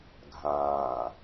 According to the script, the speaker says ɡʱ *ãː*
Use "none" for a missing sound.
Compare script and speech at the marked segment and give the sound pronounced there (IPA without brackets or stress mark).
ãː